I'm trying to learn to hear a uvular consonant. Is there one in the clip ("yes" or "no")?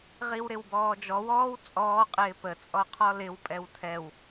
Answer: yes